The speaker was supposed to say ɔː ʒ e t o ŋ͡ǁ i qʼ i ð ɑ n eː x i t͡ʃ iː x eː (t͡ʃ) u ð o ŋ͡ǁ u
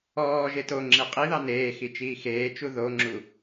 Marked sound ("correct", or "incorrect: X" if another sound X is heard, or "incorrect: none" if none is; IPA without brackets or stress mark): correct